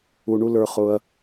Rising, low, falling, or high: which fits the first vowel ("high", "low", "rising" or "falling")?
low